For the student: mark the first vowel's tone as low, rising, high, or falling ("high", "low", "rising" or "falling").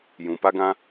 low